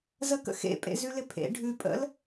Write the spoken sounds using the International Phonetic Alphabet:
z ə k ə̰ x ḛ pʼ ḛ z ʉ l ɪ pʰ ḛ ɖʱ ʉ pʼ ə̰ l

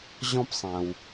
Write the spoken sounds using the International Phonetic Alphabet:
ʑ ɔ̃˥ p sˤ æ̃˩ w

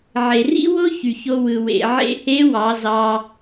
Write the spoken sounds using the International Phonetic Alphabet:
ʕ e˩ r ḭ˥ w o˥ ç y˩ ç o˧ w ɯ˩ w ḛ˩ ʕ ḛ˧ h e˧˥ w ɑ˩˧ z ɑ˧

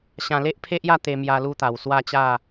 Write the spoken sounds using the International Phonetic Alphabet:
ɕ ã˧ l e˦ ʔ pʰ e˦ ʔ j a˥˧ t̪ e˧ m j a˧ l u˧ t̪ a˨˩ w s w a˥˧ t͡ɕ a˥˧

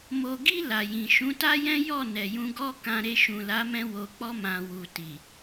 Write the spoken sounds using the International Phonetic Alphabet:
m o˨ ɡ i˧ l a˨ j ĩ˨ ʃ ũ˨˦ t a˦ j ɛ̃˦ j ɔ˦˨ n ɛ˨ j ũ˧ ɡ ɔ˦ k ã˧ ɾ e˧ ʃ ũ˨ l a˨˦ m ɛ̃˧ w o˨ k͡p ɔ˧ m ã˨ w u˨ t i˨

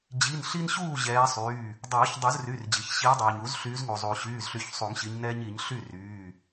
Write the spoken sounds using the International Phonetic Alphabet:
d͡ʑ i˩˧˩ n ɬ i˦ n ɕ uː˥˩ ʑ ɛː˨˦ sˤ yː˩˧˩ | dˤ ɤː˨˩˦ ç dˤ u˨˩˦ z r y˩˧˩ r d͡ʑ i˩ ç ɕ iː˨˦ dˤ uː˩ ɲ u˨˩˦ z ɬ yː˨˦ z ŋ u˩ zˤ uː˩ ɕ yː˩˧˩ z ɬ y˨˩˦ ç sˤ u˨˩˦ ŋ ɕ i˨˦ ɲ n ɛː˦ ɲ i˨˩˦ ɲ ɬ y˥˩ r yː˩˧˩

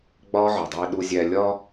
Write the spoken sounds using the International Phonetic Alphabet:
ɡ͡b ɒː˥ ʕ ɒ˩ dˤ iː˧ ɗ u˧ zʲ æ˧ lʲ ɒ˧

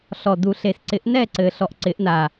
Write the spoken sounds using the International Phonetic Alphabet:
ɬ ɔ˨˩ d u˨˩˦ ɬ e˨˩ s ǀ ɪ˨˩˦ ʔ n ɛ˥˧ ǀ ɘ˨˩ ɬ ɔ˨˩ ʔ ǀ ɪ˨˩˦ ʔ n a˨˩

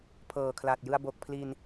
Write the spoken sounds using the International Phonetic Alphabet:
pʰ ɤː˨˩ kʰ l a˨˩ t̚ j ɯ˧ a̯ b o˨˩ k̚ pʰ l i˧ n

